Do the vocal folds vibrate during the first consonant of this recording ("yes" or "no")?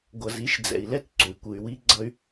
yes